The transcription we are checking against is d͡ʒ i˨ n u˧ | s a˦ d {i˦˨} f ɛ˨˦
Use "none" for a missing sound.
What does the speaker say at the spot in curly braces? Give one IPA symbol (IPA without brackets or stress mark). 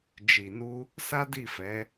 i˦˨